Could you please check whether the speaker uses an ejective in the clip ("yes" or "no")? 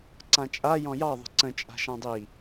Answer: yes